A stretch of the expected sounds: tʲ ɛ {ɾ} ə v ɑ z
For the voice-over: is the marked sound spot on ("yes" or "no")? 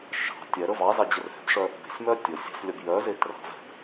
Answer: yes